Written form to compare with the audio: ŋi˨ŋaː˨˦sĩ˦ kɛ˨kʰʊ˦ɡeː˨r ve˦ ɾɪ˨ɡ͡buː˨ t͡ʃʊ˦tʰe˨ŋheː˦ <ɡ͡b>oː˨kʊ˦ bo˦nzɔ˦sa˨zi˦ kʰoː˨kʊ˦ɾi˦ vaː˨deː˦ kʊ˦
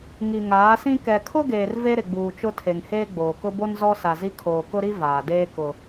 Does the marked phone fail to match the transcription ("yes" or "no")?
no